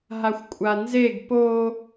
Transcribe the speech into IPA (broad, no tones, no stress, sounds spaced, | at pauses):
ɦ a xʷ kʷʼ a n z e ɡ p o